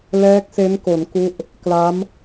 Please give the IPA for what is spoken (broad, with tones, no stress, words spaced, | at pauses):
lɛː˦˥k̚se˦˥nko˩˦n ku˦˥ʔ | kla˦˥m